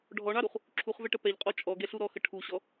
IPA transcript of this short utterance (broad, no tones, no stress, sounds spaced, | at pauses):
ɖʱ ɔ ɳ ɑ ɾ u χ | ǁʰ u χ v ɛ ʈ ə p ɛ ʎ qʼ ɔ t͡ʃʼ ɔ ɡ ɛ ɬ u ɾ ɔ x ə ʈʰ u ɕ ɔ